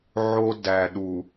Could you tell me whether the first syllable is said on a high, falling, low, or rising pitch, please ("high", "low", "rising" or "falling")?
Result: high